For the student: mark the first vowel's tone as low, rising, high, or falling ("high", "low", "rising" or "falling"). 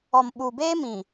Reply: low